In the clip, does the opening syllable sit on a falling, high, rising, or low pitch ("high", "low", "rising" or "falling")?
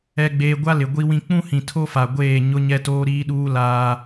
low